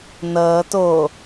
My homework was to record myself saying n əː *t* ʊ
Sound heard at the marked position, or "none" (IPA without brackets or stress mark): t